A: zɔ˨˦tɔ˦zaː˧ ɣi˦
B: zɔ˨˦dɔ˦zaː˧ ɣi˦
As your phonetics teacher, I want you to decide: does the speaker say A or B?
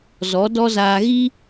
B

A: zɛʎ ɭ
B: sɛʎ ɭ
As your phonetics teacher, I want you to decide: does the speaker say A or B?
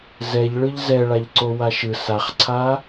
A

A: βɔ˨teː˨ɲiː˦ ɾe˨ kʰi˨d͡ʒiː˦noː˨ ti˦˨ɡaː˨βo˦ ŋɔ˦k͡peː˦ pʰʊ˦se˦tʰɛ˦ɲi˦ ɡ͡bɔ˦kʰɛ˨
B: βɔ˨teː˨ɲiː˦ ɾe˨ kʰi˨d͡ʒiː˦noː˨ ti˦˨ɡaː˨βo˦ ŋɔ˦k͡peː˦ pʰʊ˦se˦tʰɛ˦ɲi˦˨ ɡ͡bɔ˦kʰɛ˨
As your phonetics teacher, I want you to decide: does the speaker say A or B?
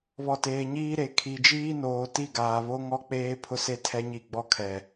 B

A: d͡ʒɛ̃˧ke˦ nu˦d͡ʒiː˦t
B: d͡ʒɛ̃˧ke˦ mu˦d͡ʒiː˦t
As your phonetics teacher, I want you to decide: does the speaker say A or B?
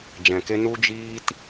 A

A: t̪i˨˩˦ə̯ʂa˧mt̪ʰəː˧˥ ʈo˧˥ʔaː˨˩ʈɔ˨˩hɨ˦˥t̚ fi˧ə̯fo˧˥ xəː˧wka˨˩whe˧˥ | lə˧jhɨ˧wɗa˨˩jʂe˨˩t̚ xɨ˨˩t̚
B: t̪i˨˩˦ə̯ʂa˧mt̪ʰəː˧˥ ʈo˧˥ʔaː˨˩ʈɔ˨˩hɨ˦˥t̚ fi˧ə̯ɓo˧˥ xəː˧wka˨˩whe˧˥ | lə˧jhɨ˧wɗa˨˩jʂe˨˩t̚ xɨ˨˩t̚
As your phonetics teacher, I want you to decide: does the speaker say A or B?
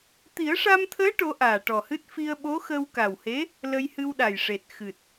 B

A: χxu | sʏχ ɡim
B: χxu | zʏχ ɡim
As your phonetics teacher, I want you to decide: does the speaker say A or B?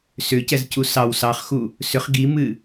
A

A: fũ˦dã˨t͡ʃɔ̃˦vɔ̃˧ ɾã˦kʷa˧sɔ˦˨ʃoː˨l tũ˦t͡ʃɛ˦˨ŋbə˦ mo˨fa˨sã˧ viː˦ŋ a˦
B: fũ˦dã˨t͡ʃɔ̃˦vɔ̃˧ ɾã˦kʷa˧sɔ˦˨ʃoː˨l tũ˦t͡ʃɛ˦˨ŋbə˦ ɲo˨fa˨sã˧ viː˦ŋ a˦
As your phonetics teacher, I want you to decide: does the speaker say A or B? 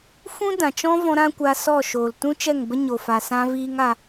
B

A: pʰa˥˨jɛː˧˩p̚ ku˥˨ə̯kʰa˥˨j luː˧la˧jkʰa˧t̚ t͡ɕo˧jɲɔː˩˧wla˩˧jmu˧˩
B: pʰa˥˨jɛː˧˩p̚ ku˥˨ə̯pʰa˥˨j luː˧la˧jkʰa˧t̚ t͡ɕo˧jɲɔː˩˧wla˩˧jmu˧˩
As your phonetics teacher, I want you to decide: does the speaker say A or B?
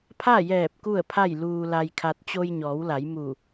B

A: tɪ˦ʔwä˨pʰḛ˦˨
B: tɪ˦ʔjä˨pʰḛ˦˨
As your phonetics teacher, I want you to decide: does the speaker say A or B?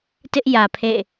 B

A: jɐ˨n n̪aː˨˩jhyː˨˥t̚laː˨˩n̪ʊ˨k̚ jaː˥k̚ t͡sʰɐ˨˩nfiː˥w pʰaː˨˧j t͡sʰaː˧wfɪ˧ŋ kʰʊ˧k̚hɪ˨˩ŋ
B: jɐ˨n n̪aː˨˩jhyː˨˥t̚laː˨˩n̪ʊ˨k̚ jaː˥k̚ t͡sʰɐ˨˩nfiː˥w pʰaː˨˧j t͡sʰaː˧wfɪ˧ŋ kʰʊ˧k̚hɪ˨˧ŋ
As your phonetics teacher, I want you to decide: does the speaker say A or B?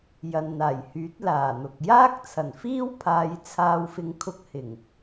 A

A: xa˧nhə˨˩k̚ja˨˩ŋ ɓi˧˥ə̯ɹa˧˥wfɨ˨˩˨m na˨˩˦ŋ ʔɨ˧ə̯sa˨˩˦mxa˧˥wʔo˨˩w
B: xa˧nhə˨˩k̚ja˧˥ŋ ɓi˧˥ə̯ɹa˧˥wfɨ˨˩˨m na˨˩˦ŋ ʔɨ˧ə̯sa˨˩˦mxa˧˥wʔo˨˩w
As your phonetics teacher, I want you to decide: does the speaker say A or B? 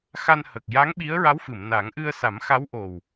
B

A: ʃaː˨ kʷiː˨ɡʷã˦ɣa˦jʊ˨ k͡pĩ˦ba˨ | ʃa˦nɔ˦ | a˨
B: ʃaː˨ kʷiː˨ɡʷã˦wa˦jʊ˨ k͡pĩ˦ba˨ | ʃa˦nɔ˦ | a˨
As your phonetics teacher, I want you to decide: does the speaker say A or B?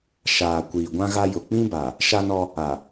A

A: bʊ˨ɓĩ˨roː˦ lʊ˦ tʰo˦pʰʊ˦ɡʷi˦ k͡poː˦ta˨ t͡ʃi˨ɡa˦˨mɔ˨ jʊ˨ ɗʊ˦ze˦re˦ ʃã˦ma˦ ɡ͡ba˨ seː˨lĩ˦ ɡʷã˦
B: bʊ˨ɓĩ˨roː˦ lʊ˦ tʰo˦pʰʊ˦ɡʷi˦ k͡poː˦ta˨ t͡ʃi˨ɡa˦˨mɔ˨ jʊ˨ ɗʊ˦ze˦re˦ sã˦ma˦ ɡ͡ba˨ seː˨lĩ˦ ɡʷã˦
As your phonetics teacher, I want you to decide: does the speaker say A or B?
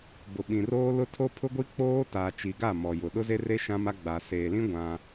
A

